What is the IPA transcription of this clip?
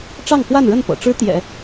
ʈ͡ʂɑ˥˧ŋkwa˥˧nɻə˥˩npɤ̰˨˩ ʈ͡ʂɻ̩˥t̪jɛ̰˨˩˦

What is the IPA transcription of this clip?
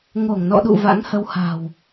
ŋo˧˩ŋnɔ̰˧˨ɗṵ˧˨ va̰˧˥ŋhə˧wha̤˨˩w

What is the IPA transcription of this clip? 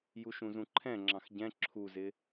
juʃũzũǃʰɛ̃ ŋ͡ǁɑ̃xɟɛ̃ ǁʰuzɪ

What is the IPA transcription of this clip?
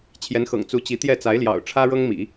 t͡ɕʰjɛ˧˥nxɤ̰˨˩ŋ t͡su˧˥t͡ɕi˧˥t̪jɛ˥˩ t͡sa˧˥ɪ̯ljɑ̰˨˩ʊ̯ʈ͡ʂʰä˥ ɻɤ˥ŋmḭ˨˩˦

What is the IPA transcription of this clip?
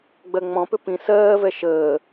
ɡ͡bɜŋ͡mɔ̃pʏ pĩ sɜːvɛ ʃəː

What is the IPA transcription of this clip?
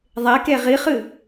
ðˤeke ʁiχɨ

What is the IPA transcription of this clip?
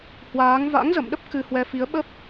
hwaː˨˦ŋ va̰˧˥ŋzə̰˧˨mɗə˦˥p̚ kɨ˧hwɛ˧fi˨˦ə̯ɓə˦˥p̚

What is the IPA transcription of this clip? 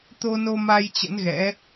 t̪o˧no˧ma˧j t͡ɕə̰˧˥nɣɛ̰˧˥

